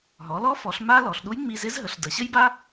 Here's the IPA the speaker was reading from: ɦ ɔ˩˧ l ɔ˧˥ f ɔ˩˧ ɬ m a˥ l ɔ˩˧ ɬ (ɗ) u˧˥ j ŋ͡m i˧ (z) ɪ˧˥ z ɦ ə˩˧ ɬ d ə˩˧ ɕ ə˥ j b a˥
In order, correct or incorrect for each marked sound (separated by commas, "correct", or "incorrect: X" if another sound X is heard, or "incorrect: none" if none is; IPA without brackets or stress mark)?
correct, correct